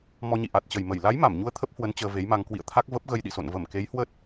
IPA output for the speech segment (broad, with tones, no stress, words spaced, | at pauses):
mɔ˧ɲḭ˧˨ ʔa˨˩t̚t͡ɕə˨˩j mə˧˩j la˨˦j ma˧˩mɲu˧ə̯ t̪ʰə˦˥p̚hwə˨˦n t͡ɕəː˧ve˨˦jma˧ŋ kwḭ˧˨ə̯t̪ʰa˦˥k̚ və˦˥p̚ ɣə˧jɗḭ˧˨so̰˧˨n və˧˩mke˨˦jhwə˦˥t̚